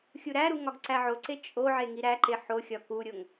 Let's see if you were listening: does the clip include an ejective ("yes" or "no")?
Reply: yes